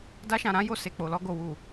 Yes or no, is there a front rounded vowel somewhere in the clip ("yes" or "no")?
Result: no